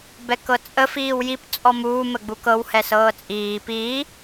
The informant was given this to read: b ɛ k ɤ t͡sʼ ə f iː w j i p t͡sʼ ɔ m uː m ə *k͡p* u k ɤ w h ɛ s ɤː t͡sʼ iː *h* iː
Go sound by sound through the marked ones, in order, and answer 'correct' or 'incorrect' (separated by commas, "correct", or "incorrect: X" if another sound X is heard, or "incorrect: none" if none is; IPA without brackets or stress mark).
incorrect: ɡ͡b, incorrect: p